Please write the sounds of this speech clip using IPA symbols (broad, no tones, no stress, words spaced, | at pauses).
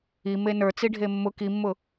i menə˞t͡si ɖʱemːʊ kimːʊ